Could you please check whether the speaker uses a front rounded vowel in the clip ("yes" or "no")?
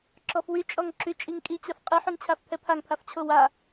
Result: yes